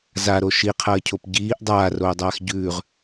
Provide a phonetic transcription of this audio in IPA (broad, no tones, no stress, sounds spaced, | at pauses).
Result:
z a ɾ o ʃ i qʰ ɐː cʰ o p ɟ iː ʔ dˤ aː r oː dˤ aː x ɟ ʉː ʁ